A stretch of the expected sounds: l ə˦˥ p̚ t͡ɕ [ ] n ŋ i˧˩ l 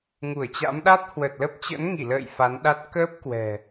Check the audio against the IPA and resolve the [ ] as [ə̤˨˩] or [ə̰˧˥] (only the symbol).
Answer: ə̰˧˥